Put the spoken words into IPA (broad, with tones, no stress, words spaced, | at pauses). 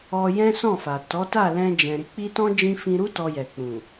ɔ˧jɛ̃˦sɔ̃˦˨fa˨ tɔ˨˦ta˦˨lɛ̃˧ d͡ʒɛ̃˨ɾi˨˦ k͡pi˦ tɔ̃˦ d͡ʒĩ˧ fĩ˧ɾu˦ tɔ˧jɛ˨ k͡pũ˨